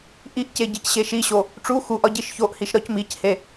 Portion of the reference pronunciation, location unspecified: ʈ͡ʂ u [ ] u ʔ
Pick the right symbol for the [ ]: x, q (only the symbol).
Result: x